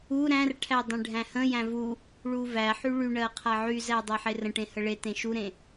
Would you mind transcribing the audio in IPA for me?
u ɾ æ̃ r ʈʰ æ dˤ ẽ ɖʱ æ̃ h ə̃ j æ̃ v u | ɭ u v æ ħ y ɭ y ɳ ɜ qʰ a ʕ y z æ dˤ a ħ e r ə̃ ʈ ẽ h ə ɭ e t ẽ ʃ u ɾ ẽ

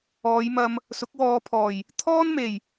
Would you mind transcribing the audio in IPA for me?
ɔː˨˧ j m ɐ˧ m | s ʊ˨˥ k̚ w ɔː˨˧ pʰ ɔː˨˩ j | t̪ʰ ɔː˥ n m e˨˩ j

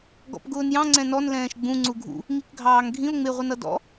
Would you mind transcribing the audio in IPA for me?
ɡ ɔ̰ p ɡ ʊː n j ɑ̃ ŋ͡ǀ ɛ̃ n ɔ n l ɛ̃ː ʃ ɡ͡b ũ ŋ͡ǀ u ɡʱ ṵ | ŋ i k ɡʱ ɑː ŋ ɡʱ ĩ o̯ ŋ͡m ɪ ʁʷ ə n ʌ d ɔ̰

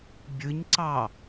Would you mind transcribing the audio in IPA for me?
bʲ ɯ ɲ ǀ ɑ

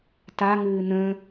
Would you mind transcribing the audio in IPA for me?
t a ŋ ɨː n̪ ə̃

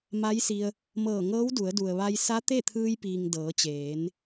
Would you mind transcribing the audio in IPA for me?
m a˧˥ j s i˧ ə̯ | m ɤː˧˩ ŋ ɤː˧˥ w d u˩˧ ə̯ d u˩ ə̯ ʋ a˧ j s a˧˥ t̪ e˥˨ t̪ʰ ɯː˧ j p iː˩ ŋ d ɤː˩˧ t͡ɕ eː˩˧ n

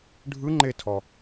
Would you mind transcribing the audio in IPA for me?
ɖʱ ɯ ŋ͡ǃ e tʰ ɔ

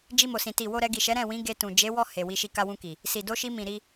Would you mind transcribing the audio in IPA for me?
d͡ʒ i˧ m o˨ s ĩ˨ t i˨ w o˧ ɾ ɛ˧ ɡ i˨ ʃ ɛ˨˦ ɾ ɛ̃˦˨ w ĩ˨˦ ɡ e˧ t ũ˨ d͡ʒ e˨˦ w ɔ˦˨ h e˨ w i˧ ʃ i˧ k a˧ w ũ˧ k i˨ | s i˨ d o˧ ʃ i˧ m ĩ˨ ɾ i˧

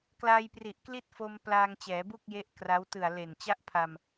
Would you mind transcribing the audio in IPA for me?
k l aː˧ j p r i˨˩ ʔ k l i˥˩ t̚ f o˧ m p l aː˧ ŋ t͡ɕ ɛː˩˦ b u˥˩ k̚ j e˦˥ ʔ k r a˦˥ w t ɯ˨˩ a̯ l e˨˩ n t͡ɕ a˥˩ ʔ pʰ a˧ m

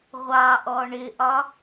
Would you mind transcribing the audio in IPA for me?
ʁʷ ɑ ʔ ɔ ɳ ɪ ʔ ɒ

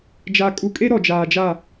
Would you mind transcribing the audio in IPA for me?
d͡ʒ a˨ kʼ u˨ kʼ e˦ ɾ ɔ˨ d͡ʒ aː˨ d͡ʒ aː˦˨

